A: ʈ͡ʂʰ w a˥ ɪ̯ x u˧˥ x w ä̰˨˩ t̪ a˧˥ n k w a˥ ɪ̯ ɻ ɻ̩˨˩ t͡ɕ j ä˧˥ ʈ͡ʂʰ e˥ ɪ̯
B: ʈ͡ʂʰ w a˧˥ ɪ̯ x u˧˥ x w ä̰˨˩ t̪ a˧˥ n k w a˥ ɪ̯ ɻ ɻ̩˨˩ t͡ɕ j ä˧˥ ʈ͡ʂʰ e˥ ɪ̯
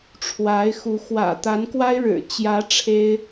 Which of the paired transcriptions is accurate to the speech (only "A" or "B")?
B